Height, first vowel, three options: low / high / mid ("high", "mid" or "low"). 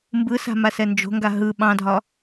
high